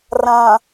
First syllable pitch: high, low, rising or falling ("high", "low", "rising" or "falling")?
low